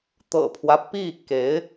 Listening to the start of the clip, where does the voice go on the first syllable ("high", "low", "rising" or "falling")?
low